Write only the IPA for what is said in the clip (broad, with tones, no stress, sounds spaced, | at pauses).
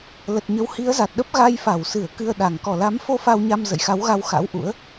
l ə˨˩ t̚ ɲ ə˨˦ w h i˨˦ ə̯ z a˨˩ t̚ ɗ ə˦˥ p̚ ɣ a˧ j f a˧˩ w s ɨ˧˩ ə̯ k ɨ˧ ə̯ ɗ a˨˩ ŋ k ɔ˧˩ l a˨˦ m f o˧ f a˧ w ɲ a˧ m z ə̰˧˨ j x a˨˦ w ɣ a˧ w x a̰˧˥ w ʔ ṵ˧˥ ə̯